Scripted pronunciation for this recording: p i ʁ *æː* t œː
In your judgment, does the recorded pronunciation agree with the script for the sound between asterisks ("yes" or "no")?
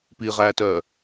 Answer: yes